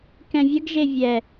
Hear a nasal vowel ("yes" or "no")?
yes